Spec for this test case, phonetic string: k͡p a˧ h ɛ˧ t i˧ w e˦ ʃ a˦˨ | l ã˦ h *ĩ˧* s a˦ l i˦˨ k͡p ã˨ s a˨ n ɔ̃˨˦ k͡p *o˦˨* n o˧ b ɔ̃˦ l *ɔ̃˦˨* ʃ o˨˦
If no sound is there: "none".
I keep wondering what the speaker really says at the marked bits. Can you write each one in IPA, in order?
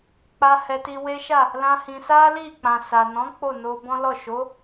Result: ĩ˧, o˦˨, ɔ˦˨

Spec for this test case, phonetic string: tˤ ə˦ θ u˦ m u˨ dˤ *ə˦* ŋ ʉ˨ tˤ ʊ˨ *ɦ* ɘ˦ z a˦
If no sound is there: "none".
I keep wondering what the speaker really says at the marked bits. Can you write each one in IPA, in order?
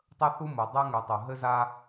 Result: ɛ˦, ɦ

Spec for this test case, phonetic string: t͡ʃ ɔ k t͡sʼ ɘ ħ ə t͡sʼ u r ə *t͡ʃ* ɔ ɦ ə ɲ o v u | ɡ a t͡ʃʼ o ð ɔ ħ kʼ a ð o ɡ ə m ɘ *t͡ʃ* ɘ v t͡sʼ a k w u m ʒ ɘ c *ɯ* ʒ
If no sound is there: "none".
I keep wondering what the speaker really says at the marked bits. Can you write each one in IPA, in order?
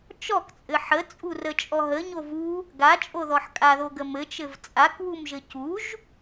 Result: t͡ʃʼ, t͡ʃ, u

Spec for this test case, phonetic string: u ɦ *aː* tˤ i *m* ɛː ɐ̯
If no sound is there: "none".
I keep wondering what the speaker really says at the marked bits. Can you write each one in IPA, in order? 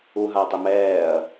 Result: aː, m

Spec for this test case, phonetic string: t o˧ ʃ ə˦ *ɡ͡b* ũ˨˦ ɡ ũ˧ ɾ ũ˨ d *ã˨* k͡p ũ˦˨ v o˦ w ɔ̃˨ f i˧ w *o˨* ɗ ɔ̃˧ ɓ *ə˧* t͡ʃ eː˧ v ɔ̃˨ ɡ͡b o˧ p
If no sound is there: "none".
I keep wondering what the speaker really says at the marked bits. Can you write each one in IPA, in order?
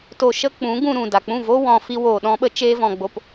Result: k͡p, a˨, oː˨, ə˧

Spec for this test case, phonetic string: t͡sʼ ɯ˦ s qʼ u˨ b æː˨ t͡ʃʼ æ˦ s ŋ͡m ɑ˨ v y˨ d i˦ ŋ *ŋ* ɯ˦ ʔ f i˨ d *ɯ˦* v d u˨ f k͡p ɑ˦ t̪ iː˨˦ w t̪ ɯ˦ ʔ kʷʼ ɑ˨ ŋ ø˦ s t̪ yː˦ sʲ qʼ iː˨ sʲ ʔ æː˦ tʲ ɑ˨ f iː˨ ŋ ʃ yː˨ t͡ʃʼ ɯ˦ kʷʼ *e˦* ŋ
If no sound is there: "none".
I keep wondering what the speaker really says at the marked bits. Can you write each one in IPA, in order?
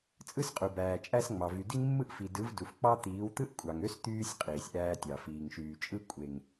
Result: mː, ɯ˨˦, e˨

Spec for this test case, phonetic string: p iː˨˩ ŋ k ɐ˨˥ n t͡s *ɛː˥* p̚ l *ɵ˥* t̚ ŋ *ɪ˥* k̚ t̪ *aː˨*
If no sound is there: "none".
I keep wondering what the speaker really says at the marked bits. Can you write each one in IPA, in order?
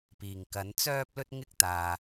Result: œː˥, ɵ˥, ɪ˥, aː˨

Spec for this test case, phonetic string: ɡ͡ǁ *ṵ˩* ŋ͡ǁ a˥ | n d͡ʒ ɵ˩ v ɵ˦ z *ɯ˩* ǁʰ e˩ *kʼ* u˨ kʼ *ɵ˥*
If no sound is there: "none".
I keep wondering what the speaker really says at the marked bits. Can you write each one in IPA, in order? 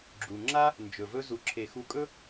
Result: u˩, u˩, x, ɵ˦

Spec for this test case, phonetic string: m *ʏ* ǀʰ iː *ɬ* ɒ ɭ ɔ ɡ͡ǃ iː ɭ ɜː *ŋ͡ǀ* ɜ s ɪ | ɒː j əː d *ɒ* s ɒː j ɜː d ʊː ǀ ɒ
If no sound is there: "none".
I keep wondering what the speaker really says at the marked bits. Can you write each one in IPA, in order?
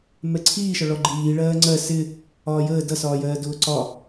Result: ɛ, ʃ, ŋ͡ǀ, ʌ

